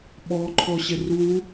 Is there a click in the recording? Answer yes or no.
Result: yes